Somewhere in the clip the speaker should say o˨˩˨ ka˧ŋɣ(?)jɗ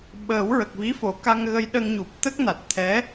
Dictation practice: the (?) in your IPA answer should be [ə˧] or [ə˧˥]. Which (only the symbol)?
ə˧